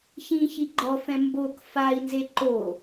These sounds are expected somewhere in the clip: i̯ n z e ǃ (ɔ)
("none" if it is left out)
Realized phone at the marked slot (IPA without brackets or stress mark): o